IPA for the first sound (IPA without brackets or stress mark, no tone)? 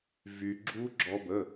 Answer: v